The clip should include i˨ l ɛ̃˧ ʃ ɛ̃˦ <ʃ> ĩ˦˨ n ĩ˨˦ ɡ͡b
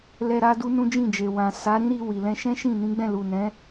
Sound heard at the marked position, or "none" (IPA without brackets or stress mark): ʃ